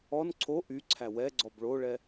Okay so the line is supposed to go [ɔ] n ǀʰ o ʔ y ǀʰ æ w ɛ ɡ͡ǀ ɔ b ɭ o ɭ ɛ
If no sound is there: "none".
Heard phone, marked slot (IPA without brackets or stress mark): ɔ